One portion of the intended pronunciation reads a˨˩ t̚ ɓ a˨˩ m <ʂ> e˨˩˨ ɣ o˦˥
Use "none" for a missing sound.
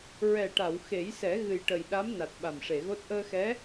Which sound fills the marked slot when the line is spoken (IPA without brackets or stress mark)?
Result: ʂ